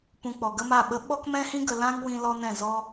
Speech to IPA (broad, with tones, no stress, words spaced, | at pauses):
pũ˧k͡pɔ˨ɡə˦ma˦˨ ɓə˧ɓɔ˦kmɛ̃˦hĩ˦ ɡə˧lã˦ŋ wĩ˦lɔ˦nɛ̃˦˨ zɔ˦